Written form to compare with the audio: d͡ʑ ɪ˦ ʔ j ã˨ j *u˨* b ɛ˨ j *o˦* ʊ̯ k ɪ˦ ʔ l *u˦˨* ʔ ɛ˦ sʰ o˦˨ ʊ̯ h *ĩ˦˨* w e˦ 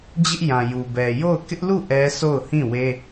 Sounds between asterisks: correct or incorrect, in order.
correct, incorrect: o˦˨, correct, correct

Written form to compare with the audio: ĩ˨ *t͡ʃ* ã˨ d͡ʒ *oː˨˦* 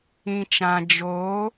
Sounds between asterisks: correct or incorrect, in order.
correct, correct

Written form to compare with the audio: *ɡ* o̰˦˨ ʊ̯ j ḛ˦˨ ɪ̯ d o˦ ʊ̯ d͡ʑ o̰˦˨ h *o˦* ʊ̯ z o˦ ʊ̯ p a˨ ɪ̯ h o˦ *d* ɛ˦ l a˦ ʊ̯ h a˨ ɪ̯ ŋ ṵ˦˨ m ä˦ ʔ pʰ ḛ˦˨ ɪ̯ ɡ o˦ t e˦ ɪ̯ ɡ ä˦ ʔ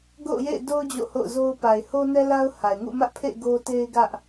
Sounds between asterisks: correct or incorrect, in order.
correct, incorrect: o̰˦˨, incorrect: n

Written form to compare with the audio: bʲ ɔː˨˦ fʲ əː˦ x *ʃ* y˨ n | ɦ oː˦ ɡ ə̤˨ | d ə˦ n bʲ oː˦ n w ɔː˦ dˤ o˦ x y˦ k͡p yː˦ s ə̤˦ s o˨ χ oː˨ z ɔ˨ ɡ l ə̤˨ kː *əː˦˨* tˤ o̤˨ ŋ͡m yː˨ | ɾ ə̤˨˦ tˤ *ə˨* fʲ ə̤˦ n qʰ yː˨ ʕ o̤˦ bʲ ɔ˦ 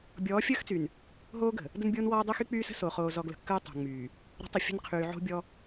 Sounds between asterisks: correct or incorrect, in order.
incorrect: t͡s, incorrect: əː˦, correct

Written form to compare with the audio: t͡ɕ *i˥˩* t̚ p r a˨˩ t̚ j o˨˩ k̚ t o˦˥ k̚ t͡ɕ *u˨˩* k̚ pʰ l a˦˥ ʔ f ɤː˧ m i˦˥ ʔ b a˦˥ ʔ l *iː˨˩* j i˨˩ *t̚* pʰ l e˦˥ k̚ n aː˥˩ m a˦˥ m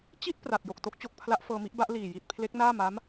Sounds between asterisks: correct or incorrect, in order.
correct, incorrect: o˨˩, correct, correct

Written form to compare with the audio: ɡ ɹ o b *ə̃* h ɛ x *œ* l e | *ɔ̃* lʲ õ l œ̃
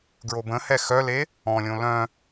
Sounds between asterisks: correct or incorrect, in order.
correct, correct, correct

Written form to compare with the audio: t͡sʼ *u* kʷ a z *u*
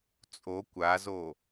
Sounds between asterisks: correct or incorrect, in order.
incorrect: o, incorrect: o

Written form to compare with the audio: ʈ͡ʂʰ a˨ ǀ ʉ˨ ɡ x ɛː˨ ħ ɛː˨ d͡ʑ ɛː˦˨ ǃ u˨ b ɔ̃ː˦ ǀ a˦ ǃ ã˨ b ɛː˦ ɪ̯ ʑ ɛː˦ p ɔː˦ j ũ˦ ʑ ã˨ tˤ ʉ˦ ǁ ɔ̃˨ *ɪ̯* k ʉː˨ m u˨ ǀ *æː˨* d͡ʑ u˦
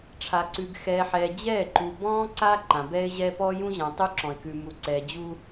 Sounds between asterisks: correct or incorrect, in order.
correct, incorrect: ɛː˨

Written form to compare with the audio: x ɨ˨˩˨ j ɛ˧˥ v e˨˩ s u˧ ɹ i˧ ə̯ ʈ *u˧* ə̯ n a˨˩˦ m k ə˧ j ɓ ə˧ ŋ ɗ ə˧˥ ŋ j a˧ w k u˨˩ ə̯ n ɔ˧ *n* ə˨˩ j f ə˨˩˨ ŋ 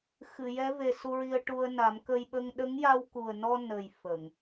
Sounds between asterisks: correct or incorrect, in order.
correct, correct

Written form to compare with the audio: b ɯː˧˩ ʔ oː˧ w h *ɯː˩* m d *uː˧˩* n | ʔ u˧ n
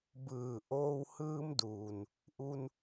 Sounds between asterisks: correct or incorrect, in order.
incorrect: ɯː˧, incorrect: uː˩

